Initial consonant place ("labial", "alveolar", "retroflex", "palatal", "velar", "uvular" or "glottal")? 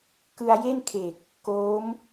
velar